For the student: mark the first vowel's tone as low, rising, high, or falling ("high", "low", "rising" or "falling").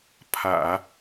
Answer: low